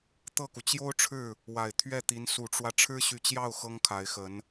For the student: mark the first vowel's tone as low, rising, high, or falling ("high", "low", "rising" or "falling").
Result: falling